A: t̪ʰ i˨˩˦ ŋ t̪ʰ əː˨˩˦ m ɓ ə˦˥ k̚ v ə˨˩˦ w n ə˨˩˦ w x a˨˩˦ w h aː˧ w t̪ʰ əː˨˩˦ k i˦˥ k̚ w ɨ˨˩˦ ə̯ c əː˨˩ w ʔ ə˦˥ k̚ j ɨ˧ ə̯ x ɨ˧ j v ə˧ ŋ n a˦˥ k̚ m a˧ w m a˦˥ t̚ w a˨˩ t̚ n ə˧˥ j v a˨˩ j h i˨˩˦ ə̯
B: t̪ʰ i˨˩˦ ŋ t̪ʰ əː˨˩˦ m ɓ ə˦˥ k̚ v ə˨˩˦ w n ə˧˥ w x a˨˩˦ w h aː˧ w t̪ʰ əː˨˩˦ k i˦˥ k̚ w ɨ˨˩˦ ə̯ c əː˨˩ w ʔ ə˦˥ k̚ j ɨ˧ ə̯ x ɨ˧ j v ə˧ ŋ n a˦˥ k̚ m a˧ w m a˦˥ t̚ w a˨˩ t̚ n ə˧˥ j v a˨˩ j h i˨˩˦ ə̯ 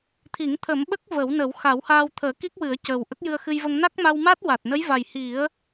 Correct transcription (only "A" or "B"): A